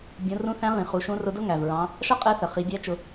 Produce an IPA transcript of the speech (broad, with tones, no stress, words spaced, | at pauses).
bʲũ˩˧rũ˧˥θæ̃˧˥ʁĩ˩ χu˩˧ʃũ˧˥rʊ˧˥dʊ˥ ŋæ˩vɹɑ̃˧˥ | ʃʌ˥qʼɛ˧˥θə˩ χi˩˧bʲæ˧˥ t͡ʃʊ˧